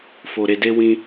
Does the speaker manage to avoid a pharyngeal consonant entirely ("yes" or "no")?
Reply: yes